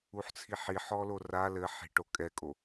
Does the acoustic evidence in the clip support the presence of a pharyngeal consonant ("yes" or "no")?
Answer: yes